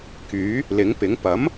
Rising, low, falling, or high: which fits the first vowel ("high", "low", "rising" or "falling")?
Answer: rising